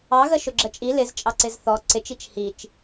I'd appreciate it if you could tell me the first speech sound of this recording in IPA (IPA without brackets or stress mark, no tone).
ɑ